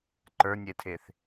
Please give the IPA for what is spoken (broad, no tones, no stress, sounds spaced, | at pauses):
ǃ ə˞ nʲ e tʰ e θ